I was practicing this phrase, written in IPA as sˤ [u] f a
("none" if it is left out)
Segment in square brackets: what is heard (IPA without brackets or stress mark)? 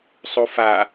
u